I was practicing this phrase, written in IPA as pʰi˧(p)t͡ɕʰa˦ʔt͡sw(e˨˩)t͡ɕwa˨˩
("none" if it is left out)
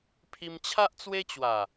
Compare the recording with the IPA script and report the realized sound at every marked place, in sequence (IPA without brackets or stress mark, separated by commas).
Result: m, e˦